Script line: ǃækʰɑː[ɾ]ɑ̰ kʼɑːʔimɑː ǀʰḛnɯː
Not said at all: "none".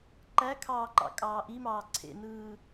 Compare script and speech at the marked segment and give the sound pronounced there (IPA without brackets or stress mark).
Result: ǃ